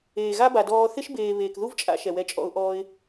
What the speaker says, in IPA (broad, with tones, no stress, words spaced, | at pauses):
eː˨ɣa˦ba˨ dɔː˧ θɪ˦ʃbeː˨ βeː˨kðu˦vt͡ʃʼa̰˧ ʃɛ˨wɛ˧t͡ʃʼɔ̰˧ʊ̯ ʔɔː˧ɪ̯